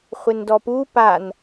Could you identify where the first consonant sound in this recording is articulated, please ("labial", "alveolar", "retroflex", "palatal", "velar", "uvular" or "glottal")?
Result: uvular